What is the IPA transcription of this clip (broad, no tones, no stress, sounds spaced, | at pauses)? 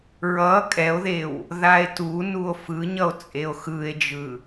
ɹ ʌ kʼ ɛ o̯ ð e w | ð a e̯ t u n u o̯ f ɯ ɲ ʌ o̯ t͡sʼ e o̯ x ɯ e̯ d͡ʒ ɯ